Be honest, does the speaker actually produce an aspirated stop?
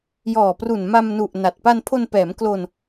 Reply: yes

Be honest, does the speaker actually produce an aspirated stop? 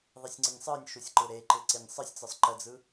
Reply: no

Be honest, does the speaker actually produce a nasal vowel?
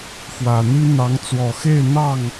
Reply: no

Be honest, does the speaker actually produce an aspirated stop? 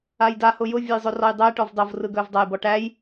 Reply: no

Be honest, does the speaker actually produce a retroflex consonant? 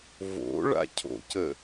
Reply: yes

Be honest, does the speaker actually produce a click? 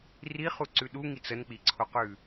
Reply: yes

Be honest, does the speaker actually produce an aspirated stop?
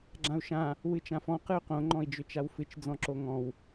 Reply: no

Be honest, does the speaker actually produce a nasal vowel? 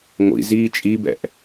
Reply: no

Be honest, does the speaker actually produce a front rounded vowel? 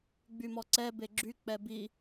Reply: yes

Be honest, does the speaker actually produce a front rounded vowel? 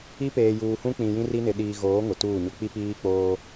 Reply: no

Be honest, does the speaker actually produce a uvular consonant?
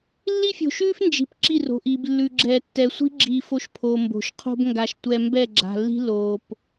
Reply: yes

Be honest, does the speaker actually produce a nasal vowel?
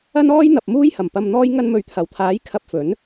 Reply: no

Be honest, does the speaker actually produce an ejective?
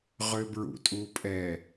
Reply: yes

